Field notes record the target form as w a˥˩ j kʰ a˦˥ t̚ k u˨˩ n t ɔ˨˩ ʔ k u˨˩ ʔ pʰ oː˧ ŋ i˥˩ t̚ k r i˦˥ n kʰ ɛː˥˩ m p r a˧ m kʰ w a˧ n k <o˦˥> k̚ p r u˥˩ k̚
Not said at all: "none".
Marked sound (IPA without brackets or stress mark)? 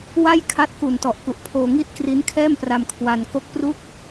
o˦˥